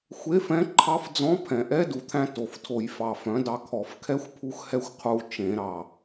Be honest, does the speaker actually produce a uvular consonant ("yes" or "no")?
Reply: yes